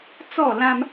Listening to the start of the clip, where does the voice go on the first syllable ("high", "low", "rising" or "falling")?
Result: falling